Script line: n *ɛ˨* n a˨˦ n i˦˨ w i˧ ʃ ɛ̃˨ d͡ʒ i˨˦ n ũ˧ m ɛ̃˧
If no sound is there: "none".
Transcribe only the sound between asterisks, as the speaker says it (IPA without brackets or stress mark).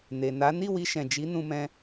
e˨